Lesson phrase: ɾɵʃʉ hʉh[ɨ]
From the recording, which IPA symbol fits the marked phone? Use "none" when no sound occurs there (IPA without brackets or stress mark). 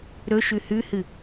ɨ